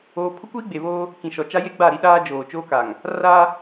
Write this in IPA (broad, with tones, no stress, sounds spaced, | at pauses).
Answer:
oː˦ pʰ ʊ˦ kʷ iː˦ ɡ͡b e˨ β oː˦ | k ĩ˨ ʃ ɔ˨ t͡ʃ a˦ j e˦ ɡ͡b a˦˨ ɾ i˦ ɗ aː˦ d͡ʒ oː˨ t͡ʃ oː˦ k a˨ ŋ | r a˦